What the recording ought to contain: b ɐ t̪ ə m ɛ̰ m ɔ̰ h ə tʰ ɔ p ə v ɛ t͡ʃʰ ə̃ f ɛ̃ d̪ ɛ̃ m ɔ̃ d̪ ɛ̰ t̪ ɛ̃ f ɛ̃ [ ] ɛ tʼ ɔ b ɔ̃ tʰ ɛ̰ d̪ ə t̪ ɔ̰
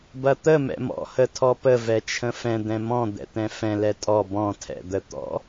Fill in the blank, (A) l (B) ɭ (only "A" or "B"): A